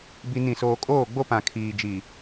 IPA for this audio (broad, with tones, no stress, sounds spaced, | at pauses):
b i˦ n ĩ˦˨ s oː˦ kʼ oː˦˨ ɡ͡b o˦ p ã˨ kʰ iː˨ d͡ʒ i˨